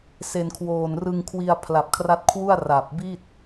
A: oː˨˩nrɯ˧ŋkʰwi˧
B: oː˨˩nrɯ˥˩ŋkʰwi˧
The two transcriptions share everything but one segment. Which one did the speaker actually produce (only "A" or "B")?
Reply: A